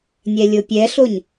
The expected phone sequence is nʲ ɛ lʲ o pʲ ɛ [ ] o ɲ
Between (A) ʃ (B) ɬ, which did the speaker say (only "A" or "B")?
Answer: B